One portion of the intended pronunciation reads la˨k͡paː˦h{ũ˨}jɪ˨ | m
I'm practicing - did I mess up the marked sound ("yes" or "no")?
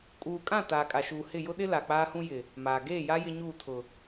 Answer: yes